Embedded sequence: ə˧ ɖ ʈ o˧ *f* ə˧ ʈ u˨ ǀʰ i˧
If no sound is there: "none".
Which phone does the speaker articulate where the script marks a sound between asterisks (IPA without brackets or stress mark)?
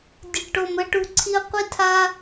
m